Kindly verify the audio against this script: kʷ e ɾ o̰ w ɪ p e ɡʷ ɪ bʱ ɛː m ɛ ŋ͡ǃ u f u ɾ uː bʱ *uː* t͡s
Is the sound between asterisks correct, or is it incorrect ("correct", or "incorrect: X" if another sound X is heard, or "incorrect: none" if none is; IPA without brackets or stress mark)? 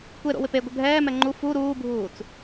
correct